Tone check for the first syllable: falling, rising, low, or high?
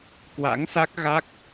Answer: rising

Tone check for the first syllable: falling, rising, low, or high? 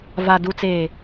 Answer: low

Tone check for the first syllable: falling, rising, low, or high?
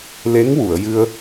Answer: rising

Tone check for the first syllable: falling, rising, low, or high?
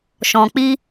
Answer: low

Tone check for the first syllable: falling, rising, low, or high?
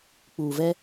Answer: low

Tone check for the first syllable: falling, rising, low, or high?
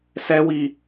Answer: high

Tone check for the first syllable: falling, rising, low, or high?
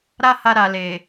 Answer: high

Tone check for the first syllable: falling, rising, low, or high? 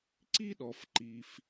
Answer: high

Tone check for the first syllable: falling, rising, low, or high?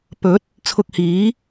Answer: rising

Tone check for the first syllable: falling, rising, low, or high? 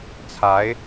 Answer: rising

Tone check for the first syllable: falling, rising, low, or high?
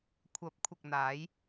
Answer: rising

